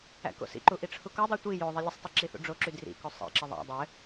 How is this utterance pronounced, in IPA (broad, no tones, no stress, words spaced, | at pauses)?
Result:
æ̰ko̰sḭǃu ʔiʈ͡ʂʰukodˤi tʷi jo ðˤelʲɘsˤtˤe ǁiθṵɖ͡ʐoǁy drḭko sˤḛǁɪ ðˤæ̰ dˤɘ